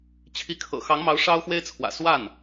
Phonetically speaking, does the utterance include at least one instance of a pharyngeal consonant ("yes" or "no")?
no